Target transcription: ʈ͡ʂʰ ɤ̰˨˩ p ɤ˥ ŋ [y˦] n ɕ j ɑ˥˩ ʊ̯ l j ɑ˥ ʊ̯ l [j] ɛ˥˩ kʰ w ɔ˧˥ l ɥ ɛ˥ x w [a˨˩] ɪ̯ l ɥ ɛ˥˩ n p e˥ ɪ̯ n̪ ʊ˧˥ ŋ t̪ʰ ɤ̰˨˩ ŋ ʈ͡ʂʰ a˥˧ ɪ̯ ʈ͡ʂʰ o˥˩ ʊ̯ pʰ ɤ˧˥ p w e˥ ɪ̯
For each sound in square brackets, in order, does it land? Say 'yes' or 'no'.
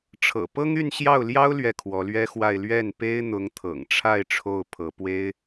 no, no, no

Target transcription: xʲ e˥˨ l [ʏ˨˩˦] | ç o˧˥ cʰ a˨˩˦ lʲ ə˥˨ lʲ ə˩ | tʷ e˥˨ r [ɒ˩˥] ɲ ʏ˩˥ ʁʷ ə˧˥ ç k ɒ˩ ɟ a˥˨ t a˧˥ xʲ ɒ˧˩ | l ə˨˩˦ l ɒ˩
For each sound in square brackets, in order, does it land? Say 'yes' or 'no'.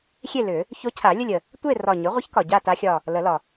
yes, no

